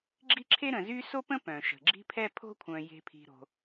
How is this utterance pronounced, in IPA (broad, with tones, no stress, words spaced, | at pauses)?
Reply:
ɡ͡ǁi˥ǁʰe˥ɾə̃˨zy˥ so˥pə̃˥ pœ̃˨ʃə̤˨ɡ͡ǁi̤˥pʰɛ˥ pʰo̤˥kʷʰœ̃˨ je̤˨ pʰi̤˨ɾo̤˨